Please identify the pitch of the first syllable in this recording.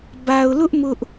low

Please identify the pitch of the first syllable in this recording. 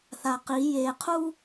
low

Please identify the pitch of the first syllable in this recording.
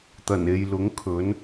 low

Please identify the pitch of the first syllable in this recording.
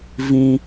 high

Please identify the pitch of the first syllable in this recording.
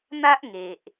high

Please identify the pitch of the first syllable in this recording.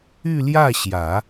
falling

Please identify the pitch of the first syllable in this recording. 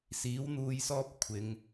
rising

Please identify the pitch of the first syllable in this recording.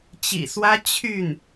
low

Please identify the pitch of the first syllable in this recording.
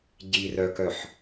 low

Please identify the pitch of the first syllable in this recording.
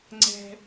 high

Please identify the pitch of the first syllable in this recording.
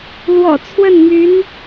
low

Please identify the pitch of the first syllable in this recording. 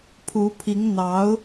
rising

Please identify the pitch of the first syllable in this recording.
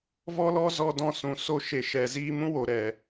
high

